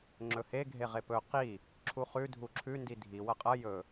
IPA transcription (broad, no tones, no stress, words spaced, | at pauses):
ŋ͡ǁɵhe ɡʱeʁepɵ qi | ǁʰuχʉ dʱuǁʰʉ ndidʱi wɐqʼɐ jɵ